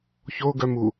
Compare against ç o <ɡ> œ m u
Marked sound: correct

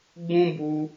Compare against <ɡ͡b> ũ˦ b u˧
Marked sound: correct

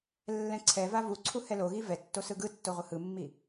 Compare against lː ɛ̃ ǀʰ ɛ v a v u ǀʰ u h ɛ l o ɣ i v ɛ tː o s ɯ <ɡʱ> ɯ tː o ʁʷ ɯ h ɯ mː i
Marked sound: incorrect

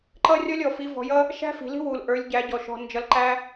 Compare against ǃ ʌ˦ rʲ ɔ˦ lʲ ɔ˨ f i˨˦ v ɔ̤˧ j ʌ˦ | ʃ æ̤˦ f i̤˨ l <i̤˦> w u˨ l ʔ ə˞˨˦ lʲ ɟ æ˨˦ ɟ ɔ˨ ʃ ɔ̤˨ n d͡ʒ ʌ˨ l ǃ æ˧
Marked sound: correct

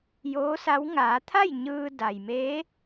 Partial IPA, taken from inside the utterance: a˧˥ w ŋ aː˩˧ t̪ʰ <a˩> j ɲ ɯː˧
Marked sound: incorrect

